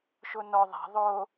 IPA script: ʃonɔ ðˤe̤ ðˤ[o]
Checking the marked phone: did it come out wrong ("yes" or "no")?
no